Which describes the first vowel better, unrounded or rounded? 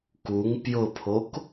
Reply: rounded